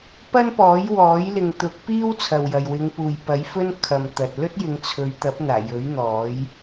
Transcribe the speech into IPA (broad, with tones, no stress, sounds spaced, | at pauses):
p ɐ˥ n p ɔː˨˥ j w ɔː˨˥ j l ɪ˨ ŋ t̪ ʊ˨˥ k̚ p iː˥ w t͡sʰ ɐ˨ w j ɐ˨ j w ɪ˨˧ ŋ p uː˨ j p ɐ˨˥ j f ɵ˥ n kʰ ɐ˨ m t̪ ɐ˨ t̚ l ɵ˥ t̚ j ɪ˨˧ ŋ t͡sʰ ɵ˨˧ ɥ t̪ ɐ˨˥ p̚ n̪ aː˨˩ j ɵ˨˥ ɥ n̪ ɔː˨˥ j